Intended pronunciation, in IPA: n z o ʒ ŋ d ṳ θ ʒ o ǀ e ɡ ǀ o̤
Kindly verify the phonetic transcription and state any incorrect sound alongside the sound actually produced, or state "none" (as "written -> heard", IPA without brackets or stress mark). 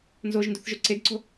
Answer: ŋ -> n